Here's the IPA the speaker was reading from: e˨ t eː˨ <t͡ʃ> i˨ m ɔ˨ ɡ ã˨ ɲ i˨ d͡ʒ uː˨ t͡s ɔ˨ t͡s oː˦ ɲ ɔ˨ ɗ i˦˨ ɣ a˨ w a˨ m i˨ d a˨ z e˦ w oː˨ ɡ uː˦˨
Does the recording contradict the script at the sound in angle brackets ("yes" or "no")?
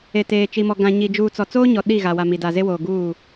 no